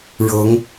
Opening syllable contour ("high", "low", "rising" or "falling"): rising